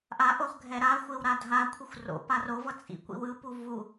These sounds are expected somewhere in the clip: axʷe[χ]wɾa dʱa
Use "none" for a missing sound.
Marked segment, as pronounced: none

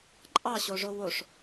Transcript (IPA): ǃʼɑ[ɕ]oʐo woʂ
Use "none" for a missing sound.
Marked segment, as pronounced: ɕ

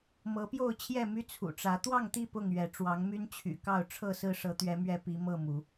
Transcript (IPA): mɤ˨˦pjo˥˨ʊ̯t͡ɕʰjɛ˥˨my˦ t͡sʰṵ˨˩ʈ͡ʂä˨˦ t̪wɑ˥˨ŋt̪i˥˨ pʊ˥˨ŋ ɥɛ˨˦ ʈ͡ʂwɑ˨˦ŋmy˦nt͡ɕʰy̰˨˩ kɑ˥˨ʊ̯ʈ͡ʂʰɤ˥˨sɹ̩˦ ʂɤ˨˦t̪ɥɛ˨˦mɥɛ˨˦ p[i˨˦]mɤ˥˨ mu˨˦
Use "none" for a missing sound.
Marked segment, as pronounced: i˨˦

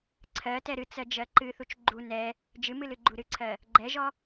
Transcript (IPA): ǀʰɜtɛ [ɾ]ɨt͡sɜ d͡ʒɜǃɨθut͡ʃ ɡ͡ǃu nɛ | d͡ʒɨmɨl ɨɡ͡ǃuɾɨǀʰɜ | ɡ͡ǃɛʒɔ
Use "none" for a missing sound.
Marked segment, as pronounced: ɾ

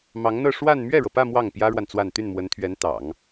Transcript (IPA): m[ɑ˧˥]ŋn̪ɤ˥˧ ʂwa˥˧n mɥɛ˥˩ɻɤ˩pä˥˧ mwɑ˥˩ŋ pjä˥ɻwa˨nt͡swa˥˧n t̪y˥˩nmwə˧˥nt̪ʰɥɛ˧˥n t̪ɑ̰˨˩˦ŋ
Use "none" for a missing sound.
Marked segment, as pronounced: ɑ˧˥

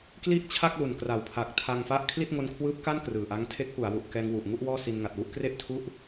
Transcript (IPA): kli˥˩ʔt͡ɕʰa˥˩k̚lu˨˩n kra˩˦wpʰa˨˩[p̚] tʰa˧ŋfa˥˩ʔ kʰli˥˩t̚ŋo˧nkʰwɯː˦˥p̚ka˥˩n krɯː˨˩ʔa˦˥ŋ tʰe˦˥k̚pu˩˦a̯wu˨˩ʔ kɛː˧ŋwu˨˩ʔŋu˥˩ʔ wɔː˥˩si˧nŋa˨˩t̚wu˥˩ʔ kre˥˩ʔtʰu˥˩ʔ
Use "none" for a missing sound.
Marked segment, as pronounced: k̚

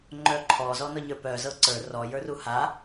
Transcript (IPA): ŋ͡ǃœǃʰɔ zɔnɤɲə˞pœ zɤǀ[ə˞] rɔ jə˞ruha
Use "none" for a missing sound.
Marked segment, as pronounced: ə˞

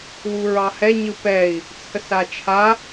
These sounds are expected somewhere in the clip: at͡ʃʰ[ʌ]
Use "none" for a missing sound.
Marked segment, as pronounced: a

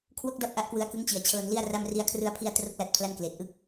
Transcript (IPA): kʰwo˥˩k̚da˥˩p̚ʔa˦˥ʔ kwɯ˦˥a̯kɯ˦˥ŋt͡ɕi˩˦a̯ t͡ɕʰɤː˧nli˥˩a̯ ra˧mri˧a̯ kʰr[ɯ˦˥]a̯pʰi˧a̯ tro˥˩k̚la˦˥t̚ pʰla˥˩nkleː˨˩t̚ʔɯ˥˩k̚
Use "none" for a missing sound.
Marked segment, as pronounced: ɯ˧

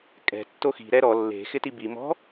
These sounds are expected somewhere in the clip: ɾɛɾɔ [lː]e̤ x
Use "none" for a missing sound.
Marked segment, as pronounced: lː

